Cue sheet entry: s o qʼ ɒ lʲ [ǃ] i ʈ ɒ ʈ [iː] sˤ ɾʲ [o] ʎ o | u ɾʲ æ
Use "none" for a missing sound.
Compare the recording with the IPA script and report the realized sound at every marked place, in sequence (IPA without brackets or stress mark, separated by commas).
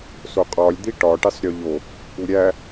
d̪, i, o